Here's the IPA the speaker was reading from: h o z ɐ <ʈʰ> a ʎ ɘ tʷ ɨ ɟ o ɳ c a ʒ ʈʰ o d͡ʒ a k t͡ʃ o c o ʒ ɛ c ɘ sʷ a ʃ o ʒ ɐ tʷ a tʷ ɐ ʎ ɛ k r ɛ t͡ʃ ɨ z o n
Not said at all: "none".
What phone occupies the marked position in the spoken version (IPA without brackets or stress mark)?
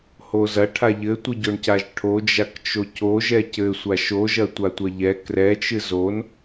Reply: ʈʰ